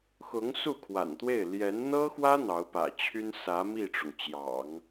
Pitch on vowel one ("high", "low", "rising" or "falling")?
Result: rising